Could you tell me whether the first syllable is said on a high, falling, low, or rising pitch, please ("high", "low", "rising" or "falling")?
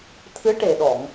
rising